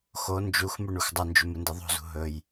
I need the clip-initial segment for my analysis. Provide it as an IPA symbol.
x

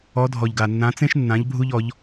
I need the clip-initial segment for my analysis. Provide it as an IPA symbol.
ɔ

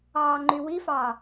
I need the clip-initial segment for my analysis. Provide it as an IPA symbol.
ɑː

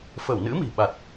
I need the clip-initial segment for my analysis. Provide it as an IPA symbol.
f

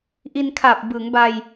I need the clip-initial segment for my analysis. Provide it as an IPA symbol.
ʔ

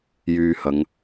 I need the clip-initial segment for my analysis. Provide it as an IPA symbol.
j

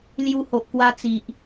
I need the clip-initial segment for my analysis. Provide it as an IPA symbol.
l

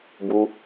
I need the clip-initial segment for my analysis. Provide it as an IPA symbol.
b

